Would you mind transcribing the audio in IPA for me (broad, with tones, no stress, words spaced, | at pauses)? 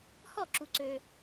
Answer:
hɔ˥˨ǁu˨ ǀø˨